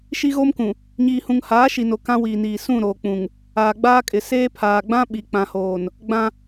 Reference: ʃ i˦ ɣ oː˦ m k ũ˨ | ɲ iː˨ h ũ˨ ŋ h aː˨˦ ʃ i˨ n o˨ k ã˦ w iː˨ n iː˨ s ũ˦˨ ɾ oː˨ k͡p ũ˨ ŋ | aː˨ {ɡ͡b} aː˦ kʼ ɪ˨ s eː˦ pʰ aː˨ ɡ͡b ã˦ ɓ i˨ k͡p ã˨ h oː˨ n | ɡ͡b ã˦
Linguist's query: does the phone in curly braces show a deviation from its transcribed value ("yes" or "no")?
no